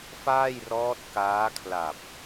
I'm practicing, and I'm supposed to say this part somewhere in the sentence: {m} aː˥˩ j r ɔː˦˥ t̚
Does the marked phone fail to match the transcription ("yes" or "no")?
yes